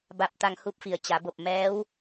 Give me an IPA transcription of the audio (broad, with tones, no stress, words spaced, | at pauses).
ba˧p̚ t̪a˧ŋhu˧˥p̚fi˩˧ə̯ t͡ɕa˩˧bo˧˩p̚ mɛː˧˥w